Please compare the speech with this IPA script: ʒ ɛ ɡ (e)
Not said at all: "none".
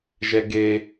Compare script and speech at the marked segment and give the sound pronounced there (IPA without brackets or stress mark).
e